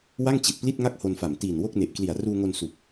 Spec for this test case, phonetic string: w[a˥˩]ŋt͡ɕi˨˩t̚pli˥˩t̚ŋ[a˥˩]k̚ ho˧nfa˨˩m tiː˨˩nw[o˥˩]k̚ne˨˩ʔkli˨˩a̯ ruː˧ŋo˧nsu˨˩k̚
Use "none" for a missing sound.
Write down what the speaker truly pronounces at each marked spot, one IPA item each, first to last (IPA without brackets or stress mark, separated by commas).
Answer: a˥˩, a˥˩, o˥˩